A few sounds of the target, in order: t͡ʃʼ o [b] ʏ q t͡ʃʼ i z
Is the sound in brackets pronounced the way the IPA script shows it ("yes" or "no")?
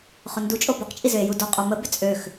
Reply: yes